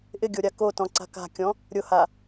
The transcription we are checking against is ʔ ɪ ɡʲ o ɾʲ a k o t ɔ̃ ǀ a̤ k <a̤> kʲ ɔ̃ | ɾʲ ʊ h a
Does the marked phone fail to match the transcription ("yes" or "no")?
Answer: no